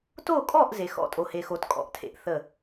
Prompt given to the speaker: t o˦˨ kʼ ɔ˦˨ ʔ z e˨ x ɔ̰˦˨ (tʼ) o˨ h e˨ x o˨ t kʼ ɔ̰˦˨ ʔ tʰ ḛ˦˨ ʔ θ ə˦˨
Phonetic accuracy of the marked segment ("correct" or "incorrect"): correct